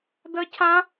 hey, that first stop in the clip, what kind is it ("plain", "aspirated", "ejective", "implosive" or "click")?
plain